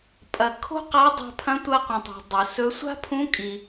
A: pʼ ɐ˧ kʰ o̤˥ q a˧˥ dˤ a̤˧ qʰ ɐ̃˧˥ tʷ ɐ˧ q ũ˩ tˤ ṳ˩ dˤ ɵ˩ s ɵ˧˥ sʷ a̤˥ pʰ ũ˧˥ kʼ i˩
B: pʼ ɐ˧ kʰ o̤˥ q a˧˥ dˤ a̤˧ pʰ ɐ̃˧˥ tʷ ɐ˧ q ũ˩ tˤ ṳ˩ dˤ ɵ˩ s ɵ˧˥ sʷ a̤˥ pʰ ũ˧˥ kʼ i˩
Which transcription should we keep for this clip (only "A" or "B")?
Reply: B